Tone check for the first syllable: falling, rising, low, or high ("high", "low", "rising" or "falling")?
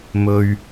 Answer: low